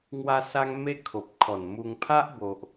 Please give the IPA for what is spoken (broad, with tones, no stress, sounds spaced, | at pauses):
ŋ w a˦ s a˦ ŋ m e˦ kʰ o˨ p̚ kʰ ɔ˨˩ n m u˧ ŋ pʰ a˦ ʔ b o˨ ʔ